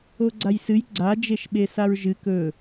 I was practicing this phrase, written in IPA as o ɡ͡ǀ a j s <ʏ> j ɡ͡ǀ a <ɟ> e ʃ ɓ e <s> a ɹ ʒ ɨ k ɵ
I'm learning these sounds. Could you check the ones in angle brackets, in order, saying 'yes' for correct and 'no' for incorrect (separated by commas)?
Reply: no, no, yes